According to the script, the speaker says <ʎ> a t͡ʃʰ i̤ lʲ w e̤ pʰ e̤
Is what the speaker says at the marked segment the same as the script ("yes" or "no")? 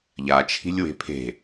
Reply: yes